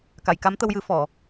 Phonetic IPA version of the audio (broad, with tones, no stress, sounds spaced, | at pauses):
k a˨˩˨ j k a˧˥ m t̪ ə˧ w j ɨ˨˩˦ f ɔ˨˩˨